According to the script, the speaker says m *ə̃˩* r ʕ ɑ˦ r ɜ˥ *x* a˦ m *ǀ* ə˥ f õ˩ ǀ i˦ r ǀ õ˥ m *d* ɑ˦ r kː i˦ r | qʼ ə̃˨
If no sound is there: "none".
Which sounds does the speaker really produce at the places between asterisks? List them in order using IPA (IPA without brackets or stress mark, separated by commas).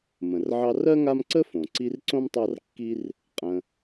ə̃˩, ŋ, ǀ, tˤ